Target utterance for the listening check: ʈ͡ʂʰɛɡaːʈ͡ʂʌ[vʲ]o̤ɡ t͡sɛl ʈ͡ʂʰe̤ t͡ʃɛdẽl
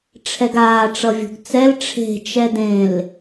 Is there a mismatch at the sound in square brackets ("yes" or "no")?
no